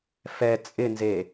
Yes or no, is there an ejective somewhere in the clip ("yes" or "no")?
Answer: yes